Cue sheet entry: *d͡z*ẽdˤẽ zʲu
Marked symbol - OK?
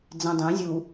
yes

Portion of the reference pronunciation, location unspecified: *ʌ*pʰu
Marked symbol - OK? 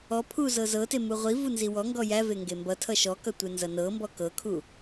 no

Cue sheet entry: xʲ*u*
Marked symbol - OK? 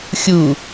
yes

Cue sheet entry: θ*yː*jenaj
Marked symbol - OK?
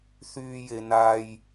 yes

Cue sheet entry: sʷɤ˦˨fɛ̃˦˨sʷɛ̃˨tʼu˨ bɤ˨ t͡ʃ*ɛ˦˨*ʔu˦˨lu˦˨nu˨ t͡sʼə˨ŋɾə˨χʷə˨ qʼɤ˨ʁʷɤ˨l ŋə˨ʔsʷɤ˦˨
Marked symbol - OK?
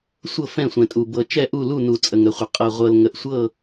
yes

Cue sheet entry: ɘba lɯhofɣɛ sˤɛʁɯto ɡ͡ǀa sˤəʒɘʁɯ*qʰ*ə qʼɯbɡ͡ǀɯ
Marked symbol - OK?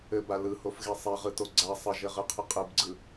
yes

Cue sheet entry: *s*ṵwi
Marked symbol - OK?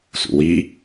yes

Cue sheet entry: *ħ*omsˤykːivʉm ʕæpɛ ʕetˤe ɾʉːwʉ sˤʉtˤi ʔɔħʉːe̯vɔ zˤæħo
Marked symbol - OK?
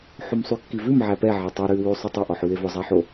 yes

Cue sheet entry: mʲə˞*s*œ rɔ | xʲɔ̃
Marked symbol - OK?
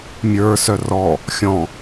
yes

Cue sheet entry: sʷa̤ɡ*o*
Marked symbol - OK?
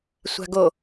yes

